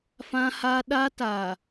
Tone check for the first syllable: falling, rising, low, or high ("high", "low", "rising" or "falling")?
high